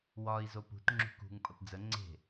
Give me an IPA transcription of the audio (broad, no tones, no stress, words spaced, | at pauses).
wɒi̯ zopṳt ŋ͡ǁṳkṳŋ pʼəpd͡zə ŋ͡ǀe̤